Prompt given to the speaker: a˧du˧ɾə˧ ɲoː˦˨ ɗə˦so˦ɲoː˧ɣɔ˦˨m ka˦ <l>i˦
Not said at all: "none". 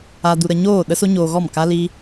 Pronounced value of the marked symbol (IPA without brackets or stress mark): l